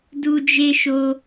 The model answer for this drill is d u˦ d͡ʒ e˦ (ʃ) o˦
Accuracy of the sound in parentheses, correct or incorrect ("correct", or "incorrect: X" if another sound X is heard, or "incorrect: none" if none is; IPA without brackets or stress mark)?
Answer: correct